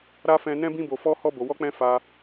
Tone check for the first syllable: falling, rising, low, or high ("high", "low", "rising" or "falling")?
high